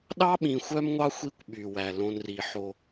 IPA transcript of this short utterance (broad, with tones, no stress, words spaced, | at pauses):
ɗɑ˥ɓĩ˨ xʷœ˥mŋʷɑ˥xʷi˦kʷ ɓy˩wæ˩ lõ˨nri˩ħo˨